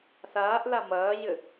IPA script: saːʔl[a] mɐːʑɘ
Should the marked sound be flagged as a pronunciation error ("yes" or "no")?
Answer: no